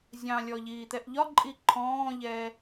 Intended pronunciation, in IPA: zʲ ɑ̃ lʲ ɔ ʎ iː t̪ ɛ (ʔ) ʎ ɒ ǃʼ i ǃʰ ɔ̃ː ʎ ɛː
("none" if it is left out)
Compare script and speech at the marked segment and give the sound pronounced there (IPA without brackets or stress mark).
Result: ʔ